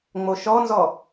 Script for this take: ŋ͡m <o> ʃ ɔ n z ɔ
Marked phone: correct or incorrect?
correct